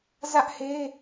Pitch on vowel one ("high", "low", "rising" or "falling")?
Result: high